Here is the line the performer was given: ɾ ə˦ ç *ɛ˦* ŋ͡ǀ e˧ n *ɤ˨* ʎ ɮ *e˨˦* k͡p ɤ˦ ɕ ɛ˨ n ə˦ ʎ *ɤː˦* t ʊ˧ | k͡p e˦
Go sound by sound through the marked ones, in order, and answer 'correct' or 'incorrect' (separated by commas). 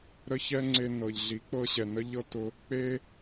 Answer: correct, correct, incorrect, incorrect